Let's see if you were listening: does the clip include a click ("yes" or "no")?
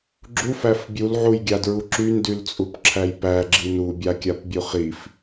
yes